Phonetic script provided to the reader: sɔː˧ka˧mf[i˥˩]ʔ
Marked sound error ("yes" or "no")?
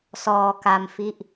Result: no